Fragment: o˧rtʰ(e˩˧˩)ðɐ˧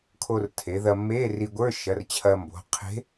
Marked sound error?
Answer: yes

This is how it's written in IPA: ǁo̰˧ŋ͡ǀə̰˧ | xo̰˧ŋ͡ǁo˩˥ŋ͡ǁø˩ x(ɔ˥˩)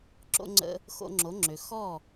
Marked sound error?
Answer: no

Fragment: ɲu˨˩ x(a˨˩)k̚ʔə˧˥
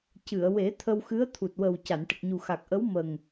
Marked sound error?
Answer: no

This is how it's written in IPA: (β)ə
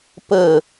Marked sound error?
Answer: yes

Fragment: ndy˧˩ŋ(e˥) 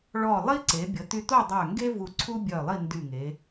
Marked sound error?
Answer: yes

